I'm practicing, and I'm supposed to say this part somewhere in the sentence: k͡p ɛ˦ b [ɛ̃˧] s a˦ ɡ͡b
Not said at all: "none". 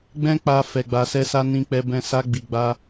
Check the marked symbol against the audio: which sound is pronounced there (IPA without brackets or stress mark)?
ɛ̃˦